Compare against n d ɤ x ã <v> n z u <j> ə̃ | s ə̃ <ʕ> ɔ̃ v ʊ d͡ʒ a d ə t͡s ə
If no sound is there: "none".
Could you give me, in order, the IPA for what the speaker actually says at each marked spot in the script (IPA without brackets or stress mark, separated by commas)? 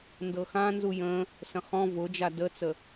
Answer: none, j, χ